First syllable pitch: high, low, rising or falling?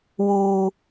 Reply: low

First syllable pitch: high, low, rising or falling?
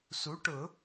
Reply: rising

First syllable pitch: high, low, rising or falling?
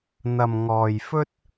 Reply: low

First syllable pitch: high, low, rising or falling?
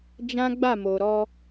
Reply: high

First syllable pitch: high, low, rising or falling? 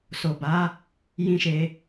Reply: low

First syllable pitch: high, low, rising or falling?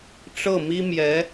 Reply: falling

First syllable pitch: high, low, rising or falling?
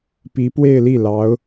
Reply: rising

